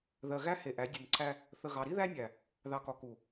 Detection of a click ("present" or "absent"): present